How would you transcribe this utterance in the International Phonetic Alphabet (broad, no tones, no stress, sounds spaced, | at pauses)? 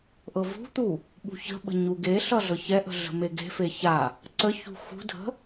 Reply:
ʔ ɤ v ṳ t̪ u | ɓ ṳ ç ə̤ ɓ ə̤ ɲ u ɡ e ɬ ʌ ɮ ɤ ç ɛ ʔ ə̤ ɮ ə̤ m e ɡ e̤ f e ç a | ǀ ə ç ṳ x ṳ dʱ ə̤